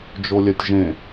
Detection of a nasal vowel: present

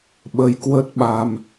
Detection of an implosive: present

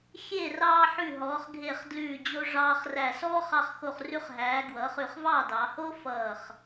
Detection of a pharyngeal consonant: present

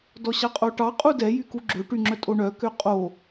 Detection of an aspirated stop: absent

